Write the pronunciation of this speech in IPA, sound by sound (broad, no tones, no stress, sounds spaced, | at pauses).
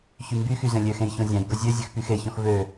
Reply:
ç y m b y x y z ẽ lʲ ø x ẽ j ç õ zʲ æ̃ j b ɵ zʲ ø zʲ ø x p y x e ç ɔ̃ x v ø